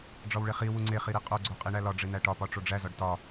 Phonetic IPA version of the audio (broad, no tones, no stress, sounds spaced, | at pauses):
ɖ͡ʐ ɒ w ɭ e χ i w u ŋ͡ǀ e χ i ɾ i qʼ o ɡ͡ǀ o qʼ i ɳ æ l ɒ ɖ͡ʐ e n̪ æ ʈ ɒ p ɒ ʈ͡ʂ o ɖ͡ʐ æ z ɒ ɖ t ɒ